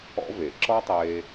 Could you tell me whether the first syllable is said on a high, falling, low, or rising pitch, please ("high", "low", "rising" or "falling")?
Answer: high